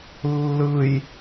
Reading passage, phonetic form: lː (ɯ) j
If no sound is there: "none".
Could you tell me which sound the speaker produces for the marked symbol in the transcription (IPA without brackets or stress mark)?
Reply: ɯ